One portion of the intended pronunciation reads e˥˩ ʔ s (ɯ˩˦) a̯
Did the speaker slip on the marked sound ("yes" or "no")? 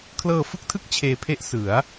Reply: no